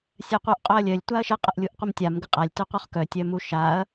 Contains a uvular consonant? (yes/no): yes